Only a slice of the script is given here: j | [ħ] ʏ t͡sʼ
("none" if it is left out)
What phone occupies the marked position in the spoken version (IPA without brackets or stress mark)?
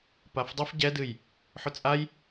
ħ